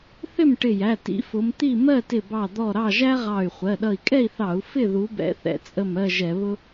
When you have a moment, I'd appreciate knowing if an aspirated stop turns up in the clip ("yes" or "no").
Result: no